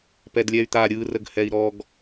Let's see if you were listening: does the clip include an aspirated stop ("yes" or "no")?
no